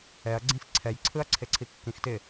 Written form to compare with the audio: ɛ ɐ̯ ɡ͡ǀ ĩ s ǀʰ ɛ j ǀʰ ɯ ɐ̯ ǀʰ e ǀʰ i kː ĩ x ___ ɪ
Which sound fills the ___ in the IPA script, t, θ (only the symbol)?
t